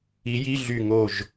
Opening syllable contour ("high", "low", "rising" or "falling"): rising